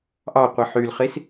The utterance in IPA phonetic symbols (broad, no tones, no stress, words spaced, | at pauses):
ʔɑqʷi ħylχis